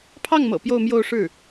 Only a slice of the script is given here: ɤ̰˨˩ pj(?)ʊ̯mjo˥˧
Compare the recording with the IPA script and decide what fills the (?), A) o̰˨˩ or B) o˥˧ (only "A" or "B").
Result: B